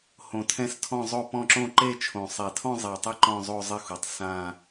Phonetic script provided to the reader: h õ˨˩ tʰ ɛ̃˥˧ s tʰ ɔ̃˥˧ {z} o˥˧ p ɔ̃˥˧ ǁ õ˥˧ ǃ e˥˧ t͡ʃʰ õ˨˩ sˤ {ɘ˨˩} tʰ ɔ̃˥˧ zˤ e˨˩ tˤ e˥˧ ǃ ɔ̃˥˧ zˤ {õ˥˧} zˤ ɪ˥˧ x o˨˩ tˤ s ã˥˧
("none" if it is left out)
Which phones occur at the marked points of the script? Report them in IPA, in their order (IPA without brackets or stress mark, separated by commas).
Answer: zˤ, e˨˩, o˥˧